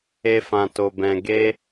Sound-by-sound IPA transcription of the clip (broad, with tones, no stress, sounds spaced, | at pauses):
e˧ f ã˨ t o˨ b ɛ̃˨ ɡ e˧